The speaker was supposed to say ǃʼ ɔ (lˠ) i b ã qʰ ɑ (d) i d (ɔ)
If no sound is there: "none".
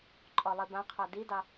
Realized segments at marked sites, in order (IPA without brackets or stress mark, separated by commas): lˠ, d, ɑ